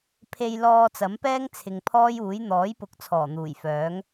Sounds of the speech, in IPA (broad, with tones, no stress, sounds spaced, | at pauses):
pʰ e˧ j l ɔː˧ t͡s ɐ˨˥ m p ɛː˥ ŋ t͡sʰ ɪ˨ ŋ pʰ ɔː˥ j uː˨˥ j n̪ ɔː˨˥ j p ʊ˨˥ k̚ t͡sʰ ɔː˨˩ n̪ uː˨˩ j f œː˨˥ ŋ